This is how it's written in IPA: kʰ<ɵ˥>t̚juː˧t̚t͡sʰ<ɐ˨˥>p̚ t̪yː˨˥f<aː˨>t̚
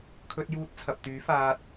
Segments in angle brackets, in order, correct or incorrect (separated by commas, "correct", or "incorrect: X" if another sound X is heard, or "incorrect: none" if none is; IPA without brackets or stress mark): incorrect: ɵ˧, incorrect: ɐ˨, incorrect: aː˧